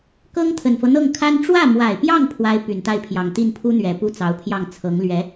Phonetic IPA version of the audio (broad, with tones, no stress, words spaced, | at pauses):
kɤ˥ŋt̪ʰə˨˩nfɤ˦n̪ɤ˥˩ŋ kʰa˥n ʈ͡ʂwä˥˩mwa˨˩ɪ̯pjɑ˥˩ŋ pʰwa˥ɪ̯py˨˩nt̪a˥˩ɪ̯pʰjɑ˨˩ŋ t̪i˥˩npʰu˥n̪ɥɛ˨˩ pu˥˩t͡sɑ˧˥ʊ̯pʰjɑ˥˩ŋ t͡sʰɤ˧˥ŋ lɥɛ˧˥